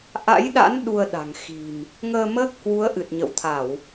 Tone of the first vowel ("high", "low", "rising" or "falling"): rising